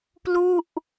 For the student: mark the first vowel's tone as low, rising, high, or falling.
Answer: falling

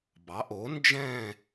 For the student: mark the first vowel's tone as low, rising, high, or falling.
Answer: rising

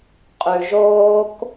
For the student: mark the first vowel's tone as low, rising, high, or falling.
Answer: low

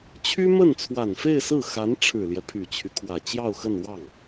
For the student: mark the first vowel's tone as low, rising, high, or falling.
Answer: high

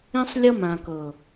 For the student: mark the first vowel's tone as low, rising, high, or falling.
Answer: high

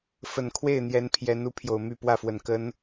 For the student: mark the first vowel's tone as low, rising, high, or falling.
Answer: low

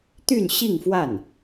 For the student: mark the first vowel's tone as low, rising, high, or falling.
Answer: falling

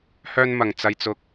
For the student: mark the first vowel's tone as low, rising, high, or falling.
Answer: high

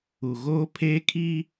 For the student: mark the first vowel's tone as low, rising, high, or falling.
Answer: low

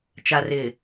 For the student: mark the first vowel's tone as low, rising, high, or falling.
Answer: low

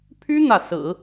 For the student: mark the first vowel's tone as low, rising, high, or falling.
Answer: high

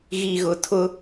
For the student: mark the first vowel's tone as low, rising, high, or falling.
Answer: low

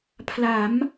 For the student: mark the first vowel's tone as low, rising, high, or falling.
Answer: rising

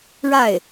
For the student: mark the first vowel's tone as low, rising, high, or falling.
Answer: falling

